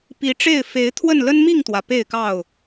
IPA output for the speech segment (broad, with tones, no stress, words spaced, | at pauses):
pi˨˦ʈ͡ʂe˥˨ɪ̯ fe˨˦ɪ̯t̪ʰwə˥˨n lə˦nmi˥˨ŋt̪wä˩ pe˥˨ɪ̯kɑ˥˨ʊ̯